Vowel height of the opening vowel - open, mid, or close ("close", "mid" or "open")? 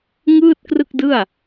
close